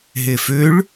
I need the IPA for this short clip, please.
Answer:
ɦ e f ø ɭ

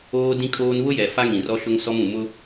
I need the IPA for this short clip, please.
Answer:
oː˦ d ĩ˦ kʼ oː˦ n β ʊ˦ j ɛ˨ f a˦ ŋ ĩ˨ r ɔ˦ ʃ ʊ˦ ŋ s ɔ˦ m ũ˨ m ʊ˦

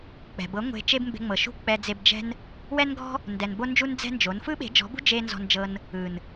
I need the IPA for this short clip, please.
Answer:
k͡p ɛ̤˨ b ɤ˨˦ ŋʷ e̤˧ t͡ʃ e˦ b m b e̤˧ ŋ͡m ɤ˨ ʃ ṳ˦ k͡p ɛ˧ d͡z e˧ b d͡ʒ ɛ̤˦ n | w ɛ˦ n ɡ ɔ̤˦ | n d ɛ˨ n b o˦ n d͡ʒ u˦ n d͡z ɛ̤˦ n d͡ʒ o˨˦ n f ɯ˦ ɓ e̤˨˦ d͡ʒ ɔ̤˨˦ b ṳ˦ d͡ʒ e˦ n z ɔ̤˧ n d͡ʒ ɤ˧ n | ɯ˨ n

